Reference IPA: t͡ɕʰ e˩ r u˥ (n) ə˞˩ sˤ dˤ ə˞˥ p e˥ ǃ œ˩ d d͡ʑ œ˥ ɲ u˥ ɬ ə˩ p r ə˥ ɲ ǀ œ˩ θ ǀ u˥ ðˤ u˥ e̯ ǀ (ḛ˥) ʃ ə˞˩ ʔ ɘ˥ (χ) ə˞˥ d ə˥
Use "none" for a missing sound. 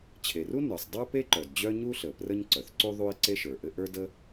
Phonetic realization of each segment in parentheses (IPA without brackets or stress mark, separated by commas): n, e˥, ʔ